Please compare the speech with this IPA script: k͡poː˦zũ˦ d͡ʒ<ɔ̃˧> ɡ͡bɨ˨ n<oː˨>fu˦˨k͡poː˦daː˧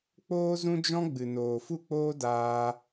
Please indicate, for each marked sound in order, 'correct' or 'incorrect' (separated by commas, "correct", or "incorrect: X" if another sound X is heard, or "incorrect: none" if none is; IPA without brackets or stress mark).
incorrect: ɔ̃˦, correct